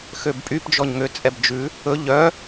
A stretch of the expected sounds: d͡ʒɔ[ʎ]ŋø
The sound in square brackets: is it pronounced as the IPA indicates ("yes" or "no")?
no